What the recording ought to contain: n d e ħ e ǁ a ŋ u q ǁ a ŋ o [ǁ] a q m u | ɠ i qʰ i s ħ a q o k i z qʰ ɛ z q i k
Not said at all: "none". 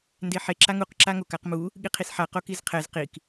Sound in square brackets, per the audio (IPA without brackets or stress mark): k